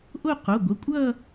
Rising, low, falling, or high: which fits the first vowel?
falling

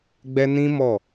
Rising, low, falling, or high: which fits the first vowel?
high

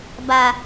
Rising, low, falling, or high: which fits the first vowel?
low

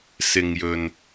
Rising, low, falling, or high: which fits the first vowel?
low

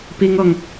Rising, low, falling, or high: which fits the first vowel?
high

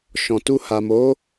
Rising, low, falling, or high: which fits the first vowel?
low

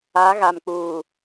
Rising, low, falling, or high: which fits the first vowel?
rising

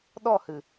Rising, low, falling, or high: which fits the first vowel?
falling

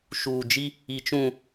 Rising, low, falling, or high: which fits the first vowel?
low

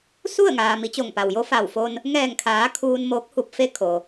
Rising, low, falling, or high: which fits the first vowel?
falling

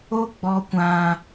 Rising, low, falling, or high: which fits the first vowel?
high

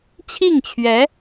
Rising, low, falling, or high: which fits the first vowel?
falling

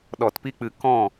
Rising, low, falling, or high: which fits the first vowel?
low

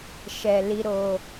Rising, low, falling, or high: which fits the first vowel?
low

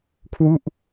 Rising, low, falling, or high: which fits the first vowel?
falling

